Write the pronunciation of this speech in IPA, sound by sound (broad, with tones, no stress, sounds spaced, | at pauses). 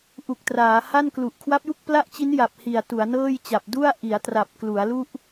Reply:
ʔ u˨˩ k̚ t r aː˩˦ h a˥˩ n k l u˨˩ ʔ kʰ w a˦˥ p̚ j u˥˩ k̚ p l a˥˩ ʔ t͡ɕ i˦˥ n j a˨˩ p̚ h i˨˩ a̯ t u˩˦ a̯ n ɤː˥˩ j t͡ɕ a˨˩ p̚ d u˥˩ a̯ ʔ i˩˦ a̯ t r a˨˩ p̚ k l u˩˦ a̯ l u˥˩ ʔ